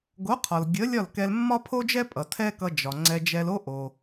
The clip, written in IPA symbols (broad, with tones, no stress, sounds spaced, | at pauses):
ɡ o˩˥ qʰ ɒ˩ l ɡʲ ə˩˥ lʲ ɒ˥˩ l k ɛ˧ l mː ɒ˥ pʰ o˥ d͡ʒ ɛ˥ pʼ ʌ˩ tʰ ɛ˥ k ʌ˧ d͡ʒ ɒ˩ ŋ͡ǀ ɛ˧ d͡ʒ ɛ˧ l o˥ ʔ o˩